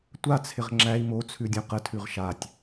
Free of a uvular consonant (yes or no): no